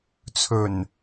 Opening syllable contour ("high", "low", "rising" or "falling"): low